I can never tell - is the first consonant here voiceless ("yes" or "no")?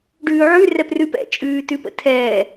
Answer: no